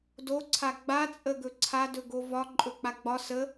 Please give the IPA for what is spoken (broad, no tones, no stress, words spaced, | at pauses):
doǀʰa ɡ͡bat͡sʼəɡɵ ǀʰadɵɡo vɒ ǃʼɵk͡paɡ͡bɒ sə